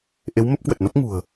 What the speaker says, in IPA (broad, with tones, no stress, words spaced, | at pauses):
ʔe˨˦wmə˦˥p̚kwə˨˩t̚no˦˥p̚ ŋṳ˨˩ə̯